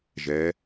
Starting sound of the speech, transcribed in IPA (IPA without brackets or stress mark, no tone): ʒ